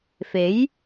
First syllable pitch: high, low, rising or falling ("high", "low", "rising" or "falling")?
rising